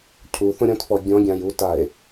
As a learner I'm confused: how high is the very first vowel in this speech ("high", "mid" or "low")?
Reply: high